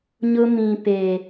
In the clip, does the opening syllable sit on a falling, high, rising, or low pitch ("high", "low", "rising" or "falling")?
high